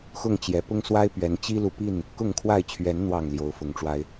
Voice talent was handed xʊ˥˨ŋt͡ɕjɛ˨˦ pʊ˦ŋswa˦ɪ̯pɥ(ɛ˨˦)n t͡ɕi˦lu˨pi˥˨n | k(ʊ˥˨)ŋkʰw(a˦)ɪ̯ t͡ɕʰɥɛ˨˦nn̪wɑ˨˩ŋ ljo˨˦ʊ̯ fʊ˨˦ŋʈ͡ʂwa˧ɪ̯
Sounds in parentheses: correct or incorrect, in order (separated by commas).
correct, correct, incorrect